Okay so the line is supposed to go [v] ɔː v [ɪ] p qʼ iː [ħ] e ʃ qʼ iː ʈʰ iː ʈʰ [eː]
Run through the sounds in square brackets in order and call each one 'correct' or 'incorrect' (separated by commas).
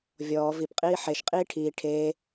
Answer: incorrect, incorrect, correct, correct